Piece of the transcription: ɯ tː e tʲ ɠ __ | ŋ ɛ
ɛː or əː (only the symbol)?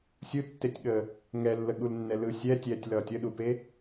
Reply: əː